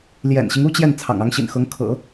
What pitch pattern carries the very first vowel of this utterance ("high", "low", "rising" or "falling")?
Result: low